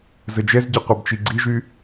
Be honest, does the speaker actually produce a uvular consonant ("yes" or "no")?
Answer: yes